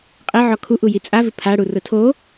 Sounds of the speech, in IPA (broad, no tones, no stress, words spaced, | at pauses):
qʼeʕɔ kʰuʔu jit͡sʼavɪ pʰaɽu rʊtʰo